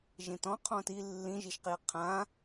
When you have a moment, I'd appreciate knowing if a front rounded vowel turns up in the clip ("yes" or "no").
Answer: no